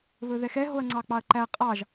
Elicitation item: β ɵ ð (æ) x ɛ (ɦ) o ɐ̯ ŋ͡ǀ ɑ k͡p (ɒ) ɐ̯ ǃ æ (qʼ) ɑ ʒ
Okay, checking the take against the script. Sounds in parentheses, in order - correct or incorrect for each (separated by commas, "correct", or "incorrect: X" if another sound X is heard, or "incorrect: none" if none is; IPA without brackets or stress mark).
incorrect: ɛ, correct, incorrect: ɑ, correct